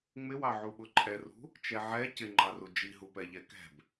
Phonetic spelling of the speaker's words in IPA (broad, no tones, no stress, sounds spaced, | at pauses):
ŋ͡m ɪ w ɑ ʕ u ɓ ʊ ǃʼ ɛ r ṳ | t͡ʃ ɛ ʕ ɛ c ɪ ŋ͡ǃ ɑ r u d͡ʒ i ɦ u p ɛ ʎ ɛ k ɛ̤ b